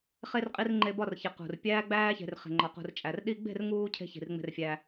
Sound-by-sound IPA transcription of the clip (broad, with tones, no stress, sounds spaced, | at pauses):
χ e˧ r qʼ i˧ r ŋ͡ǃ e˧ b ɒ˦˨ r ç e˨ q ṳ˨ r pʲ æː˧ ɡ͡b æː˧ ç e̤˨ r χ e̤˨ ŋ͡ǃ ɒ˨ q ṳ˨ r t͡ʃʼ æ˨ r ɗ i˦ ɡ͡b e̤˦˨ r ŋ uː˦ cʰ e̤˧ ç i̤˨ r ŋ͡m e̤˧ r fʲ æː˧